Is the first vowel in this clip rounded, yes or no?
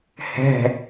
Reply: no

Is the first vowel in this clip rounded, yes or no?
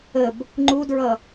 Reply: no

